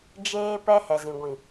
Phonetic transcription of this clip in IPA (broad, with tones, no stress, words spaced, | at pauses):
d͡ʒeː˦ pɛ˦hɛ˨zĩ˨ɡʷĩ˨